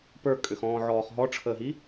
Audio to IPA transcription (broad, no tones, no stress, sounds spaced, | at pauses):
p ə˞ kʼ ʏ x ɔ̃ː ʕ ɔː χ ɦ ɔ ʈ͡ʂʰ əː ɦ i